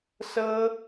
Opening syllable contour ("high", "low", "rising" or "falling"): high